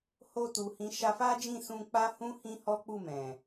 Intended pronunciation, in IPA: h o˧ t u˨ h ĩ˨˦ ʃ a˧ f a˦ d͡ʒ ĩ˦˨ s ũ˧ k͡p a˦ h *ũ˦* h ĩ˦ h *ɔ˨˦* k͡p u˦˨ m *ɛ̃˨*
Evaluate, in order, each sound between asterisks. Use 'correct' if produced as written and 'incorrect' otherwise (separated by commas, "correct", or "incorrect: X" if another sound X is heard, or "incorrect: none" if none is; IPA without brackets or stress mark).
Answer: correct, incorrect: ɔ˦, correct